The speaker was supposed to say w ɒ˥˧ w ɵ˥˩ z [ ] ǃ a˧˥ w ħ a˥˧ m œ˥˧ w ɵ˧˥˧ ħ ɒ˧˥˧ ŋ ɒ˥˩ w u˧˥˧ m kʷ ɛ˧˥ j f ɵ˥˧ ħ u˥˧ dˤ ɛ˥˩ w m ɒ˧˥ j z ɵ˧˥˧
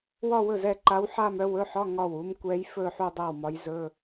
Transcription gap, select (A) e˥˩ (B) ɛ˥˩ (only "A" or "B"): B